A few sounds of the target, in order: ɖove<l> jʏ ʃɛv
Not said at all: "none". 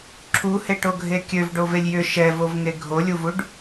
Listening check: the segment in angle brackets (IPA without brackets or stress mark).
lʲ